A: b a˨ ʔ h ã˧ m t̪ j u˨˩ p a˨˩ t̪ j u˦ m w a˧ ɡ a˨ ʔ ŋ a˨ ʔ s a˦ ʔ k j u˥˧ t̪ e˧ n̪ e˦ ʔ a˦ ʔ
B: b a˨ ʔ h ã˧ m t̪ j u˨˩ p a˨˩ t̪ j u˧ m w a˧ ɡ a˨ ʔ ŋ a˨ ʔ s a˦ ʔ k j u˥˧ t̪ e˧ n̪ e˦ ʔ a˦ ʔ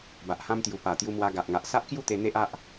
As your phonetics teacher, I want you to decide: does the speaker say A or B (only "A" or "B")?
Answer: B